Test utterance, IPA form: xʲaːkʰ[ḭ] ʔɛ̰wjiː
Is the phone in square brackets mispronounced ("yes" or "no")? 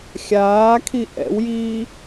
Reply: yes